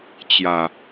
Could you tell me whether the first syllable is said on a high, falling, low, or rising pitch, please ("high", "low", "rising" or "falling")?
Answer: low